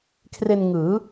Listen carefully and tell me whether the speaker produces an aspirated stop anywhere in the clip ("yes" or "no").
yes